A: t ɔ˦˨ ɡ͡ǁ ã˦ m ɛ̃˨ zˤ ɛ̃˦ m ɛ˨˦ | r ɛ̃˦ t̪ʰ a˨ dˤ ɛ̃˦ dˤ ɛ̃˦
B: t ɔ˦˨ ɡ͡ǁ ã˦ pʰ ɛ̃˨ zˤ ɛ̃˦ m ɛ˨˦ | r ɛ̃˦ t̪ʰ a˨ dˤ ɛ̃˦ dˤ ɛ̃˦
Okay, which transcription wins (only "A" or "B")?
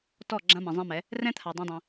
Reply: A